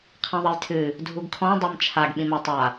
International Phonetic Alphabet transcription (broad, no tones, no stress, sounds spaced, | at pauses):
qʰ ĩ ðˤ ɐ j tʰ ɨ | dʱ u ɡ kʰ ɔ̃ dˤ ɛ m t͡ʃʰ a ɡ ɓ ĩ m a tˤ a